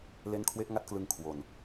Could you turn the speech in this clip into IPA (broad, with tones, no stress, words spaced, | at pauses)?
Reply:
le˦˥nkʰwe˦˥ʔŋa˦˥t̚klɯ˧ŋ kʰwo˧n